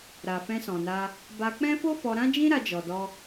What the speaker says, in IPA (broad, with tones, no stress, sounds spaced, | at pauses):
ɾ a˨ f ɛ̃˧ s ɔ̃˨ n a˧ | b a˧ k͡p ɛ̃˦ f o˦ f ɔ˧ ɾ ã˦ d͡ʒ ĩ˦ ɾ a˧ d͡ʒ ɔ˨ d ɔ˧